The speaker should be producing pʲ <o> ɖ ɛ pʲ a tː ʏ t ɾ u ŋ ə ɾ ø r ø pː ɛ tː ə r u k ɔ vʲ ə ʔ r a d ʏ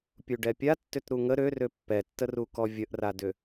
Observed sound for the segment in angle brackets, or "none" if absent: u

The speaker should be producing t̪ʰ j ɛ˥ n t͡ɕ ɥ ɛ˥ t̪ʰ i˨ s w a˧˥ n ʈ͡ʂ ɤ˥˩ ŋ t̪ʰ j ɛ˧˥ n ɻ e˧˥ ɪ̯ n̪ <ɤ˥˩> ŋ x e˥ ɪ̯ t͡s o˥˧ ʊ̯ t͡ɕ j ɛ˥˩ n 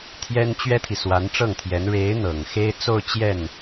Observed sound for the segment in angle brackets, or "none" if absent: ɤ˨˩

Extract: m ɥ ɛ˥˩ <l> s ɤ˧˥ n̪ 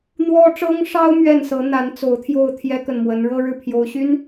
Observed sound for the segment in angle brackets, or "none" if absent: n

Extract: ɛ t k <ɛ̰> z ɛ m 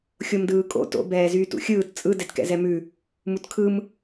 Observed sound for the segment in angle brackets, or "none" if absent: ɛ̰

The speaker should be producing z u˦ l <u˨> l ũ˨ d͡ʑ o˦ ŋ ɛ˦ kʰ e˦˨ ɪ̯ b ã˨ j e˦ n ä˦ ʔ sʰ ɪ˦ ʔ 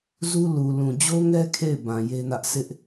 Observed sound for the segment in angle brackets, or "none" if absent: u˨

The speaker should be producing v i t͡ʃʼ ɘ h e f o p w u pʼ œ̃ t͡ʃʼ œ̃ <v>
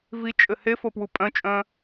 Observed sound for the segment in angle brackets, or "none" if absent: none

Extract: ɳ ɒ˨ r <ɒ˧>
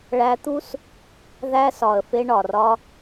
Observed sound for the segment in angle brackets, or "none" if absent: ɒ˧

